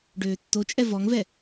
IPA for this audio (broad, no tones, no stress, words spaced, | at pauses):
ɖøːtːot͡ʃʼɛ vɔŋvɛ